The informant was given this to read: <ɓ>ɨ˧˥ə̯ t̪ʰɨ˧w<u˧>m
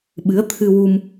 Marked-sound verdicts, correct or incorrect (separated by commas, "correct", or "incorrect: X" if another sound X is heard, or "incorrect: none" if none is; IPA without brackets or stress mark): correct, correct